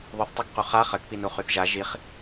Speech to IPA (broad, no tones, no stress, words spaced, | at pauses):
ðˤyθtˤakqu χa χəkpinu χyθʒa ʒiχ